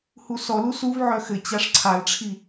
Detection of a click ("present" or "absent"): present